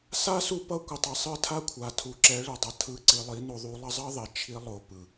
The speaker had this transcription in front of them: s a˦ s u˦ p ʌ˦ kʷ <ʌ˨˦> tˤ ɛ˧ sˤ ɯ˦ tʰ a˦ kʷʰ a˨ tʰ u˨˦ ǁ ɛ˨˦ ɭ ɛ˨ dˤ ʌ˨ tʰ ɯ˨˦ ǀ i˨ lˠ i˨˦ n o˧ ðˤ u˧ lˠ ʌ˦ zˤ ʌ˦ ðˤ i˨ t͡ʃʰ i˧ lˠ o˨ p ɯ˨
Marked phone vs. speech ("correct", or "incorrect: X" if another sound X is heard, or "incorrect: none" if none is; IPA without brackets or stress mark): incorrect: ʌ˧